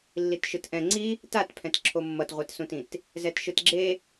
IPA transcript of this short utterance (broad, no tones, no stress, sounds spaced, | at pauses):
lː i t ʃ ɯ t ʔ ɛ̃ ŋ͡ǀ i | t a t pʰ ɛ̃ t ǁʰ o mː ʌ t ʁʷ e t s ũ t ĩ t | z ɛ t ʃ ɯ t ɡ͡ǁ e